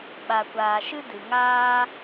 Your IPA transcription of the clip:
ɓ a˨ kʷ aː˨ ʃ ɨ˦ d ɨ˨ ŋ aː˦

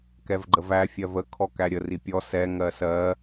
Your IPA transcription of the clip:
k ɛ v ɡ͡ǃ ə v æ fʲ ɜ v ə kʰ ɔ k æ ɾʲ ə r i pʲ ɔ s ɛ ŋ ɜ s ɜ

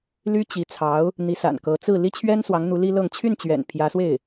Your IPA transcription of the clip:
l y˥ t͡ɕ i˧˥ t͡sʰ ɑ˧˥ ʊ̯ | n̪ i˧˥ s a̰˨˩ n k ɤ˧˥ t͡s ɹ̩˥˩ l i˥ t͡ɕʰ ɥ ɛ˥ n s w ɑ˧˥ ŋ n̪ u˧˥ l i˥ l ɤ˥˧ ŋ t͡ɕʰ y˥˩ n t͡ɕ ɥ ɛ̰˨˩ n pʰ j ä˧˥ s w e˥˩ ɪ̯

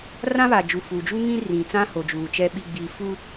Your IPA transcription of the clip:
r ã˦ β aː˨ d͡ʒ u˨ f uː˨ d͡ʒ u˦ ŋ ĩ˦ r ĩ˨ t͡s ã˦ h o˨ d͡ʒ uː˨ t͡ʃ ɛ˦ ɓ i˦ ɡ͡b iː˦ f u˦

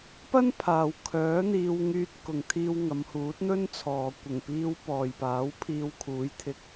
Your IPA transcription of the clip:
p ɐ˥ n pʰ aː˨ w kʰ œː˨˥ n̪ iː˧ w ŋ yː˧ t̚ k ʊ˨ ŋ t̪ʰ iː˧ w ŋ ɐ˨˧ m h uː˨˥ t̚ n̪ ɵ˥ n t͡sʰ ɔː˨ kʷ ɪ˨˩ ŋ p iː˧ w p ɔː˨ j p aː˨˥ w pʰ iː˧ w kʰ uː˨˥ j t̪ʰ ɪ˧ k̚

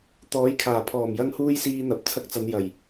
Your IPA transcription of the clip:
t̪ ɔː˨˥ j kʰ aː˨˩ pʰ ɔː˨˩ m j ɐ˧ ŋ h uː˧ j s iː˧ n̪ ɐ˨ p̚ t͡sʰ ɐ˧ k̚ t͡s ɐ˨˧ n j ɐ˨˩ j

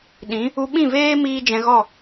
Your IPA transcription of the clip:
ɗ ĩ˨˦ | u˧ ɓ ĩ˦˨ v eː˦ m iː˦ d͡ʒ ɛ̃˧ ɣ ɔ˦˨

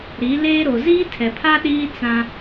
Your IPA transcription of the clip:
ɾ i˨˦ l eː˦ ɾ o˨ z iː˦ tʰ ɛ˨ pʰ a˦ ɗ iː˦ t͡s ã˦

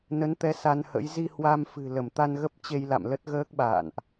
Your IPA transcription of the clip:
n ə˨˦ n t̪ ɛ˨˦ s a˧ n h ə̰˧˥ j z i˧ h w a˧ m f ɨ̤˨˩ l ə˧˩ m t̪ a˧ n ɣ ə˦˥ p̚ t͡ɕ e˧ j l a̰˧˨ m l ə˦˥ t̚ ɣ əː˦˥ k̚ ɓ a̰ː˧˨ n ʔ

